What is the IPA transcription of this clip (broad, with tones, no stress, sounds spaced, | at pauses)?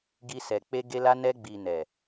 ɡ i˧ s ɛ˨ k͡p e˧ ɡ e˧ l a˧ n ɛ˧ ɡ͡b i˨ n ɛ˨